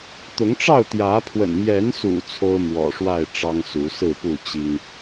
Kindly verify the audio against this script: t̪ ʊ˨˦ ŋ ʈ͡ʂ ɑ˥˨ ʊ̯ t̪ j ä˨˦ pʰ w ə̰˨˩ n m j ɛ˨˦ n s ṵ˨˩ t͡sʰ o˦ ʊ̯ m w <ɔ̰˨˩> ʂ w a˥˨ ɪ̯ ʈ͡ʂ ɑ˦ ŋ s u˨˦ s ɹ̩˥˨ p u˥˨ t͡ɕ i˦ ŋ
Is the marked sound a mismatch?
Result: no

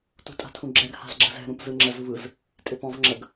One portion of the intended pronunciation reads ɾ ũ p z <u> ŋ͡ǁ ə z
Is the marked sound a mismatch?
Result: yes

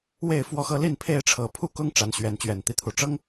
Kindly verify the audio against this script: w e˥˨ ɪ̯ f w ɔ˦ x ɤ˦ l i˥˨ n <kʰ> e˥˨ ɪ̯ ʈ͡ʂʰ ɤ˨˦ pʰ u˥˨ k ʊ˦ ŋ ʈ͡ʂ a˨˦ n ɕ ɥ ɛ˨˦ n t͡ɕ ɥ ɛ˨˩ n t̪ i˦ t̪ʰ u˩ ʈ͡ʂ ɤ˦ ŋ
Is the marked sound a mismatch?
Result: yes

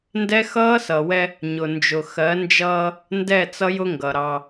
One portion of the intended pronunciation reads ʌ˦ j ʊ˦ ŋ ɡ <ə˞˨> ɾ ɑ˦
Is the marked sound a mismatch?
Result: yes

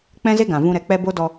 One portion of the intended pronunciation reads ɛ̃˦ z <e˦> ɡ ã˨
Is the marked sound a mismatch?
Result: no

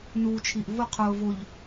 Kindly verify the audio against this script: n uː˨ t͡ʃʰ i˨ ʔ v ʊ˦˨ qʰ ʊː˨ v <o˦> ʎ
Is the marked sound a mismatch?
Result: yes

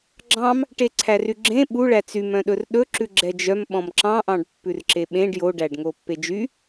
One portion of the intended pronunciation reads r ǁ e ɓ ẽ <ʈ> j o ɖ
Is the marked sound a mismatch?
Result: yes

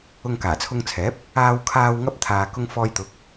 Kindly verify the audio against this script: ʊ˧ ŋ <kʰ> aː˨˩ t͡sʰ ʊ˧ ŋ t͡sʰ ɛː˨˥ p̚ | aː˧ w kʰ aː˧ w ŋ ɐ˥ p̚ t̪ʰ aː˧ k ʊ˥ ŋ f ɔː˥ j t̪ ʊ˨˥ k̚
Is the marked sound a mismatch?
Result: yes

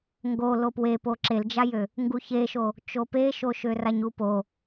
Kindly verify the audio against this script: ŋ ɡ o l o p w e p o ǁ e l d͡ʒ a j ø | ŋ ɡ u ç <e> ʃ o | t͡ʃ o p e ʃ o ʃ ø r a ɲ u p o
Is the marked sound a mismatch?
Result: no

